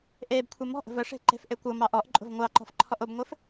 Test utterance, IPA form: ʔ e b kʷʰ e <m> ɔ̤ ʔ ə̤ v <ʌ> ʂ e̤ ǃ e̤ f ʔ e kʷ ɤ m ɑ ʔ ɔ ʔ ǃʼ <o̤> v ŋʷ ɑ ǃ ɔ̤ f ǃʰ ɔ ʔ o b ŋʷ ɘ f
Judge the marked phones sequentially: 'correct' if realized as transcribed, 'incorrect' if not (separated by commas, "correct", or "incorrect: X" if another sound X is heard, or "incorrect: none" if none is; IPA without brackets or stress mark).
correct, incorrect: ə, correct